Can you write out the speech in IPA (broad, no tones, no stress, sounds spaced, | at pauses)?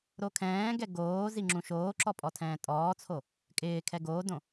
ɾ o kʰ ɛ̃ː ɡ ɛ ɡ oː z i ŋ͡ǁ ũ ʃ oː ǁ ɔ pʼ ɔ tʰ ɛ̃ː tʼ ɔː t͡sʰ o | kʼ ɪː kʰ ɛ ɡ oː d õ